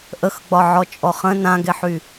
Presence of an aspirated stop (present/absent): absent